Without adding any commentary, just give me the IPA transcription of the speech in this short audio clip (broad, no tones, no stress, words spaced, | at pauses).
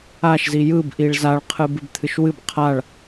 aʃzi jɯbʔiɭ zaɭqʰɨ bɨbt̪ʰɨʃwɨb qʰaɭ